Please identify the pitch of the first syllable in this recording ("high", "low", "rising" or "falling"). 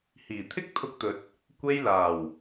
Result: low